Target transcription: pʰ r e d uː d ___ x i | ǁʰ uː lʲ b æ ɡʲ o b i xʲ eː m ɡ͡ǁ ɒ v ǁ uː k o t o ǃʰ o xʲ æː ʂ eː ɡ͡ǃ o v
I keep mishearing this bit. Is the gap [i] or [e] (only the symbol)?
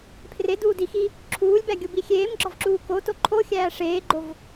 i